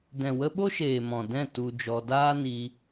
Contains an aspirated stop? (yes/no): no